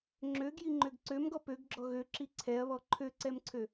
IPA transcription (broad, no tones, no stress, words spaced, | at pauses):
ŋ͡ǁøɡjiŋ͡ǃøɡ ǀømɡɔ pøɡɡ͡ǁɔ ɣøǁi ǀʰɛɐ̯βɔ ǃʰøǀɛmǀʰø